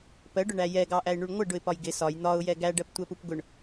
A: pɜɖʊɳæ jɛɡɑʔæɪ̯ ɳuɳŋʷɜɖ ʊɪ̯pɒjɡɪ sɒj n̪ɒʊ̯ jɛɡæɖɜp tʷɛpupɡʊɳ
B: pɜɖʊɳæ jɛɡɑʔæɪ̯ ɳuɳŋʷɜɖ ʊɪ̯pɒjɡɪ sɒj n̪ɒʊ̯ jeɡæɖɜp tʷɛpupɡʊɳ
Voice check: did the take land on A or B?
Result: A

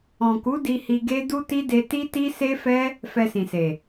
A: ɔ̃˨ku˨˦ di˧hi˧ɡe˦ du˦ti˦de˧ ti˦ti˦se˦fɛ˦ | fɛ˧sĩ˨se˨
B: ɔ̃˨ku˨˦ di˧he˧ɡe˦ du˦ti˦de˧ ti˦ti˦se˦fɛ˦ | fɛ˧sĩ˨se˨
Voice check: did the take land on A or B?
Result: A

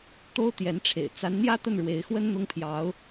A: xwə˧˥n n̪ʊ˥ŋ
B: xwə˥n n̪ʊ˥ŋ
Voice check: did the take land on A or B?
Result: B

